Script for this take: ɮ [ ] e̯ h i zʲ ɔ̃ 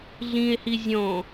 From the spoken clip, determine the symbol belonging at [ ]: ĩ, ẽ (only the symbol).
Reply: ĩ